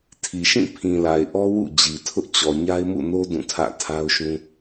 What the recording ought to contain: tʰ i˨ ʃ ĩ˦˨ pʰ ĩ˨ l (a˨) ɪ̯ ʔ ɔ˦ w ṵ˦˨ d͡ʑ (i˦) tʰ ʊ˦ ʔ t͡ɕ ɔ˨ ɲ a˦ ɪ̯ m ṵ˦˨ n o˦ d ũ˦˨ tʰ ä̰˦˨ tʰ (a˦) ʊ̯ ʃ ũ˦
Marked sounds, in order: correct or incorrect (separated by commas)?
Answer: correct, incorrect, correct